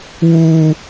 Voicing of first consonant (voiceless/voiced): voiced